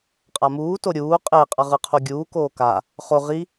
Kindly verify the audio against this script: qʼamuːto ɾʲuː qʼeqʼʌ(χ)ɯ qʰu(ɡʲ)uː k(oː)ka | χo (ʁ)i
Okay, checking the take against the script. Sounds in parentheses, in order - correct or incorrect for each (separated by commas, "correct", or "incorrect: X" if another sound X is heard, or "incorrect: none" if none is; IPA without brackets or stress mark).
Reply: incorrect: ʁ, correct, correct, correct